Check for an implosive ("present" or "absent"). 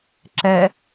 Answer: absent